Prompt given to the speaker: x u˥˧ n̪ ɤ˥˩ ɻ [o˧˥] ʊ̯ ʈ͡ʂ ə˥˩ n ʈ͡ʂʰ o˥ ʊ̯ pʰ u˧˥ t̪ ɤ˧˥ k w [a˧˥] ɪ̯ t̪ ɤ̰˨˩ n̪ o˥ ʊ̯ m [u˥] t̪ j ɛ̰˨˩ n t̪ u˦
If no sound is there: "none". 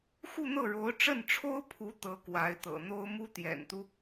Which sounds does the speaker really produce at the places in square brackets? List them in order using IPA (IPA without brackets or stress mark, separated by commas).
o˧˥, a˧˥, u˥